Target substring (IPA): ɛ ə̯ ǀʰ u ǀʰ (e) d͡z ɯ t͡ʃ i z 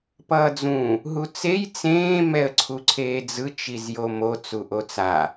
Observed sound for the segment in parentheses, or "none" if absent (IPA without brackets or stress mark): eː